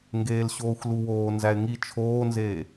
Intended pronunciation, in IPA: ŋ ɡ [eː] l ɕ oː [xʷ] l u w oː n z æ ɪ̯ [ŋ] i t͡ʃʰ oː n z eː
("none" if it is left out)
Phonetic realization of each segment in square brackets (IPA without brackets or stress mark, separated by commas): eː, xʷ, ŋ